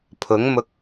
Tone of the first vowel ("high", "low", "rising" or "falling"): rising